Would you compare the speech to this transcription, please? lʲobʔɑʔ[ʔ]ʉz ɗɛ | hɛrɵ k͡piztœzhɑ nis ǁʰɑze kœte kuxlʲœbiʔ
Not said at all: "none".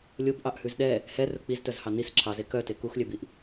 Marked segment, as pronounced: h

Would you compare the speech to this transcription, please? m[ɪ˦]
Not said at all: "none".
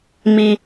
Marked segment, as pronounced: i˦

